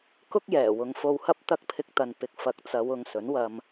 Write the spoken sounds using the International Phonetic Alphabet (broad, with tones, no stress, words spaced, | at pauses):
kʊ˥k̚jɛː˨˩ wʊ˨˧ŋfo˧whɐ˥p̚t̪ɐ˥k̚ pʰɪ˧k̚t̪ɐ˨n pɪ˨k̚fɐ˨˥k̚ t͡sɐ˨˧wʊ˨ŋ sɵ˨˥nwɐ˧m